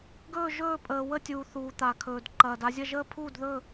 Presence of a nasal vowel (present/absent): absent